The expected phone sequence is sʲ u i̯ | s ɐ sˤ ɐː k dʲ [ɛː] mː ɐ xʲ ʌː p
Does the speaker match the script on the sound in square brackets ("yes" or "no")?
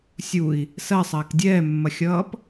yes